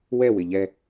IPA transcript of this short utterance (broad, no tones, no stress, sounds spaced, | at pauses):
w ɛ w ɪ ʎ ɛ